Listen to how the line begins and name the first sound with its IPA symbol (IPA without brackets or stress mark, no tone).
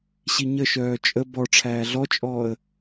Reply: ɕ